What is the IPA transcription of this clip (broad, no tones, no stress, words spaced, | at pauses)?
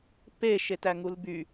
pe ʃetæŋulby